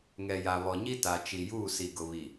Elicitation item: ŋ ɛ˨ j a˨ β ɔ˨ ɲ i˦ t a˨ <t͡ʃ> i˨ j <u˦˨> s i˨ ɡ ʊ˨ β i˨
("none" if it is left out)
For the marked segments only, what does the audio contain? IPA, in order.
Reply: t͡ʃ, uː˦˨

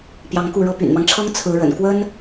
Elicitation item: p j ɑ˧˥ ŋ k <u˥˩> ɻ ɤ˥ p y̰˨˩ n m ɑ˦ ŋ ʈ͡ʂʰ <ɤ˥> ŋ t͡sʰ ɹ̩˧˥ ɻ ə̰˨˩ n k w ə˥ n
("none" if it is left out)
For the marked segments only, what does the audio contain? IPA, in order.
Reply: u˥˩, ɤ˥

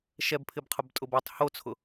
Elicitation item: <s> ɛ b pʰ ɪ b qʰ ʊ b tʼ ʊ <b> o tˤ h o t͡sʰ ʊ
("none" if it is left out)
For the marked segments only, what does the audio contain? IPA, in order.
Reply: ʃ, b

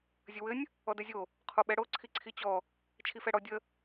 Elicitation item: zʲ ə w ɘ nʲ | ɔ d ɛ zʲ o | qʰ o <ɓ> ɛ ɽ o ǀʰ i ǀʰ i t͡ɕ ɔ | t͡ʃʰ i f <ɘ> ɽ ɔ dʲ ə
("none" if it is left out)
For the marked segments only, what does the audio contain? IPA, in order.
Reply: ɓ, ɛ

